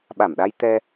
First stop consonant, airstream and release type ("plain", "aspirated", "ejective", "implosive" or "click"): implosive